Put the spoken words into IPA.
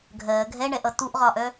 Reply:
ɡʱ ɜː ɡʱ ɛ ɳ ɛ ʔ ʌ t u ʔ ʁ ɒ ʔ œ

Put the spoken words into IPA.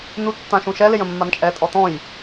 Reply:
n u tː ã ʃ ũ ʃ ɛ l ɪ j ə̃ mː a n t͡ʃʼ ɛ tʼ ɔ t̪ ɔ̃ j

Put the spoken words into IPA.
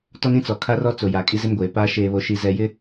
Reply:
t ɔ˦ n ĩ˦ t͡s ɔ˨ kʰ a˦ r ɔ˦ t͡s o˨ j a˨ kʼ i˦ z ɪ˦ m ɡʷ eː˨ p aː˦ ʃ eː˨ β o˨ ʃ i˨ z ɛ˨ j ɪ˦

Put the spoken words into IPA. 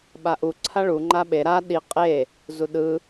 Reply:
ɓ a ʔ u ǀʰ a ɭ u ŋ͡ǃ a ɓ e ɾ a ɗ i qʼ e | z u ɗ ɯ

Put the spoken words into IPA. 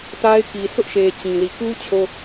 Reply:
t a˦ ɪ̯ k i˨ sʰ ʊ˦ ʔ ʃ e˨ t͡ɕ ĩ˨ l i˨ k u˦ t͡ɕʰ o˦

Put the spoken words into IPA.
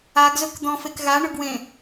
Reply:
a ɡ z ɵ k d̪ ɔ̃ f e k ɣ a ɳ ɵ ɡ w ẽ

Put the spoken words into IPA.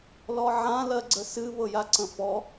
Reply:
l ɔ ʕ ã l ɜ ɡ͡ǀ ə s ɨ β ɤ j a ǀ ə̃ f ɔ

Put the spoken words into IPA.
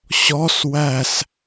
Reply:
ɕ ɔ s w æ s

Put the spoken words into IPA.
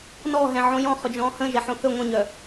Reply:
n ɔ ɦ ɛ̃ ʕ õ j ɔ̃ χ ɵ d͡ʒ ɔ̃ː h ə̃ ʒ ɛ ħ õ θ ɵ ŋʷ ə̃ ɲ œ

